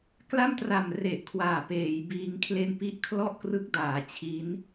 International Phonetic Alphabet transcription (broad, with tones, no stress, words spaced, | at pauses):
kla˥˩mtra˨˩m re˨˩ʔkʰwaː˨˩peː˩˦jbiː˧ŋ kʰle˧npi˦˥ʔkʰlɔ˥˩ʔkrɯ˦˥k̚ daː˩˦t͡ɕʰi˦˥n